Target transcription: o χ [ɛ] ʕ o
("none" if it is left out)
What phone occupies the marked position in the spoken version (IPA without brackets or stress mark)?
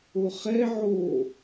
ɛ